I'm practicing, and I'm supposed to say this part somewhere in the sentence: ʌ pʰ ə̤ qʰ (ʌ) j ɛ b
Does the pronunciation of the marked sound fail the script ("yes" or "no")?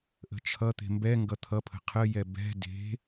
yes